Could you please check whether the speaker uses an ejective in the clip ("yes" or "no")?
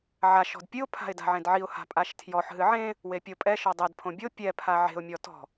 yes